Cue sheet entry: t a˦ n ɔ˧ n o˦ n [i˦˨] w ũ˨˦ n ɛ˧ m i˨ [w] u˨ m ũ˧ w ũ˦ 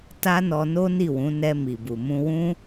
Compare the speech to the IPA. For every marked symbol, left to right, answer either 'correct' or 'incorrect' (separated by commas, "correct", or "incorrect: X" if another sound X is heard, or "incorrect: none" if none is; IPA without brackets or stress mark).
correct, incorrect: b